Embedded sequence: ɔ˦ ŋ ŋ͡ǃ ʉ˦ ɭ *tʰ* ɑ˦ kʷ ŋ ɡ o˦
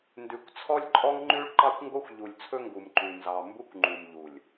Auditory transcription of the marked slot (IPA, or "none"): ǃ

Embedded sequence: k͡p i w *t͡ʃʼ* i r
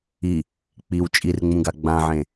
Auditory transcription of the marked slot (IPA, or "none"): t͡ʃʼ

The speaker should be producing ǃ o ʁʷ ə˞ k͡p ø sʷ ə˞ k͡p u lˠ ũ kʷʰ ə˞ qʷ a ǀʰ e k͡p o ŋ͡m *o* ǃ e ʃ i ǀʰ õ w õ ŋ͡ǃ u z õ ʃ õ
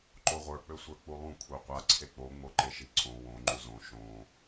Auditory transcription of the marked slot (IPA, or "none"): o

